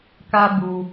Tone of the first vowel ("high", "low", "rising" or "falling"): high